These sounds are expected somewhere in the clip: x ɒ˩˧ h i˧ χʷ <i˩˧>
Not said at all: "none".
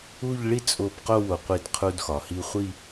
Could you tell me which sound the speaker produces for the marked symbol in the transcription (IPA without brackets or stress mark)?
i˥˧